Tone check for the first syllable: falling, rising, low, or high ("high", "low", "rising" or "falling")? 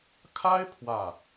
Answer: high